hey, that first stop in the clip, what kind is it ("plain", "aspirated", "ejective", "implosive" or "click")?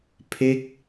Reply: aspirated